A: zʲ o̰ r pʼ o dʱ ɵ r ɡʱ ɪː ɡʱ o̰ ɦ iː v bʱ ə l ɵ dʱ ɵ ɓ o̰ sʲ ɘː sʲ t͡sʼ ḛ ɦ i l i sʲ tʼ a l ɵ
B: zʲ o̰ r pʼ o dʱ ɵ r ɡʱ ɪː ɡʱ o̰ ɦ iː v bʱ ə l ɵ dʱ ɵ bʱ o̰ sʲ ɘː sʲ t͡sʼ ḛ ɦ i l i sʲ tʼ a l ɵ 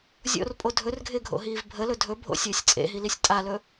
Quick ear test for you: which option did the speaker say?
B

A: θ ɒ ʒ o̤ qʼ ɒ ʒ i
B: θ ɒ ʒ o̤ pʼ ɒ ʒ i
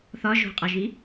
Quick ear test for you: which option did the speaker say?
A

